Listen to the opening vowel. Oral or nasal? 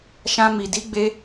nasal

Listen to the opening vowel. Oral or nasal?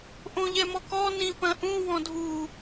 nasal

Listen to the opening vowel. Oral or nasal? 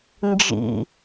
oral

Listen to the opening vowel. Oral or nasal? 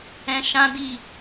nasal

